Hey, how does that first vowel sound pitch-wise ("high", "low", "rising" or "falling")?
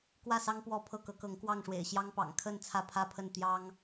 falling